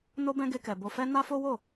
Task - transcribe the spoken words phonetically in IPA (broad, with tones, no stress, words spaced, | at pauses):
no˦bɛ̃˦ ɡe˦kɛ˧ bo˧fɛ˦ na˦fo˦wo˦˨